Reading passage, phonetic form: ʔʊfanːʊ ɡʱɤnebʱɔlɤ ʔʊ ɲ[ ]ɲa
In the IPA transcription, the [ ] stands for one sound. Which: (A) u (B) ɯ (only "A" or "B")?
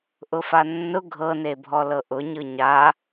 B